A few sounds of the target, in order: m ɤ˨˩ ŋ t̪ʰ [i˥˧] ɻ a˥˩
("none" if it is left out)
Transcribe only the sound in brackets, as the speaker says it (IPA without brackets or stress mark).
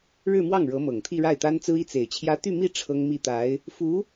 i˥˧